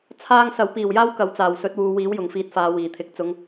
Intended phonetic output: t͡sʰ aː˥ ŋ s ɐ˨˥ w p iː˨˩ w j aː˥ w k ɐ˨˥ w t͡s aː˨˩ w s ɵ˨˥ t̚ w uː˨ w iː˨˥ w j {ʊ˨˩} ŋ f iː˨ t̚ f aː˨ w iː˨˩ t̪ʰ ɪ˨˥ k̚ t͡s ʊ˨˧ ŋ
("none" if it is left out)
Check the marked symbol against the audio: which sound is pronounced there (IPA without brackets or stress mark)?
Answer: ʊ˨˩